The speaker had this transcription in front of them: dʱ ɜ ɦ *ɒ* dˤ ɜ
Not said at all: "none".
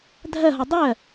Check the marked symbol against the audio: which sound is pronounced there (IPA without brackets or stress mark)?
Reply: ɒ